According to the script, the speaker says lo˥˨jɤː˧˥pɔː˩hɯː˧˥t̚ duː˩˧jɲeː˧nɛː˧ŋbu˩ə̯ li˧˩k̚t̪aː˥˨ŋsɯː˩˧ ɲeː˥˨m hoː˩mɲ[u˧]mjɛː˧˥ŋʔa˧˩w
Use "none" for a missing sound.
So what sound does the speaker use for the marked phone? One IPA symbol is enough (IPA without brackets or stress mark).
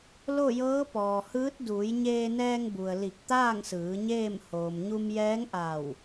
u˧